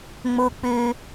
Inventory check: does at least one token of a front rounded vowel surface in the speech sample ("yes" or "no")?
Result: yes